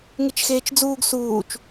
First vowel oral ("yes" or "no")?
yes